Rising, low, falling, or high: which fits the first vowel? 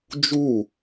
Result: falling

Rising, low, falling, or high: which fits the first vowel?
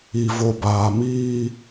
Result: low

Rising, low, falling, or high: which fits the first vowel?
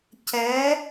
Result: rising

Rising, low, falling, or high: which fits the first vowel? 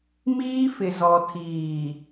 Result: high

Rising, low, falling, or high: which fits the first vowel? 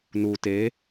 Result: low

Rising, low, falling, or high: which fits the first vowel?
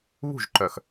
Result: falling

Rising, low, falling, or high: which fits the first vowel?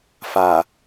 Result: low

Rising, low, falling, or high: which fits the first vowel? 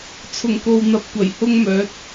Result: low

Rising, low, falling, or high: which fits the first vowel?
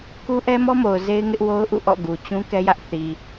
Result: high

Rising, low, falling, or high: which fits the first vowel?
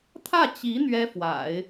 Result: falling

